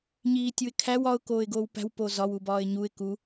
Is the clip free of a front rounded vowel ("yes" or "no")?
yes